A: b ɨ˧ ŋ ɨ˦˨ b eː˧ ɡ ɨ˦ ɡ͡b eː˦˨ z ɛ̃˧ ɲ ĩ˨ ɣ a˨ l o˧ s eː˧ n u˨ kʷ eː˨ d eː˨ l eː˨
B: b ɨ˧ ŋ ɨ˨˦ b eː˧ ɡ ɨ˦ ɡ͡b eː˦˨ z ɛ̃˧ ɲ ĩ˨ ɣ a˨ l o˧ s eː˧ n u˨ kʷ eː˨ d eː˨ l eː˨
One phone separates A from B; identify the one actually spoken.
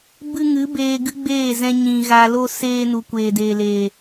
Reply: B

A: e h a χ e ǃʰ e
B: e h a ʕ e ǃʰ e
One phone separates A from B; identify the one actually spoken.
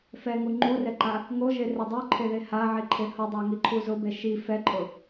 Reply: B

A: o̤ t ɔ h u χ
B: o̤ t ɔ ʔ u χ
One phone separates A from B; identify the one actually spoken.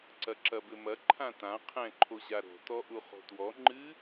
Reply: B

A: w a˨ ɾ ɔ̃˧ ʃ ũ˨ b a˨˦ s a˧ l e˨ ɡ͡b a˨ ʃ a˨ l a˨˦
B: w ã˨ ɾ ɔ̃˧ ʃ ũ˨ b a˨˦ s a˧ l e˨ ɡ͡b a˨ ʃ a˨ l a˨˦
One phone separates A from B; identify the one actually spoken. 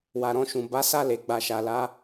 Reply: A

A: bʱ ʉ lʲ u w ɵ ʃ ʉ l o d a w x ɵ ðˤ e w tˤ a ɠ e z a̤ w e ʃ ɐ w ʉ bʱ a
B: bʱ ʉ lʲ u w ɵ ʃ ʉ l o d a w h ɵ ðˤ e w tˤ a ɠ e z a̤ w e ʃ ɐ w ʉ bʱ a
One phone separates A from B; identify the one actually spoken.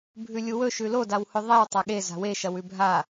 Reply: B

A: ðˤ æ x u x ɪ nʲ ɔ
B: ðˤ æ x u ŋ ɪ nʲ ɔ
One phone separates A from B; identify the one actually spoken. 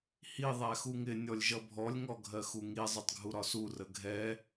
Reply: B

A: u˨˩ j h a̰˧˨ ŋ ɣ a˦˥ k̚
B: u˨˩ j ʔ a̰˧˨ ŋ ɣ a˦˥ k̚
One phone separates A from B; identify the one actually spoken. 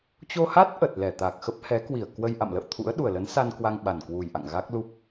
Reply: B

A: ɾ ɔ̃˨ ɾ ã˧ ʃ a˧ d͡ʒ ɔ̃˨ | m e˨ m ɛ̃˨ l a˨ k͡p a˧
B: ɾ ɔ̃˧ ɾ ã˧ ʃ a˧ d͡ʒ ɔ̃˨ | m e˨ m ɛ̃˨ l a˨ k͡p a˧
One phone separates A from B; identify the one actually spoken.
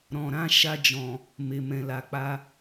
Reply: A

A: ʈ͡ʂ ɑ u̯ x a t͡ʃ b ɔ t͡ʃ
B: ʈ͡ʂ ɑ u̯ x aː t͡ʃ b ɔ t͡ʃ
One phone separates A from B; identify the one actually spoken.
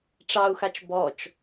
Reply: A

